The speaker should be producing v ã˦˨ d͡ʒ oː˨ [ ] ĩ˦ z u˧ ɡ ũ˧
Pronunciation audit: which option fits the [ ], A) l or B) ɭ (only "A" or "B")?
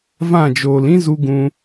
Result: A